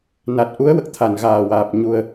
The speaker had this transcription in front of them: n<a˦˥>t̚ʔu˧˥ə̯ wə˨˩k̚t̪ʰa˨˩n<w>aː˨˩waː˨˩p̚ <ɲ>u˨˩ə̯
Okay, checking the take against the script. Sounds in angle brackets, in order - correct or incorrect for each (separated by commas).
incorrect, incorrect, correct